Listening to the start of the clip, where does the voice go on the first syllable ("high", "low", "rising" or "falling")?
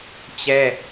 high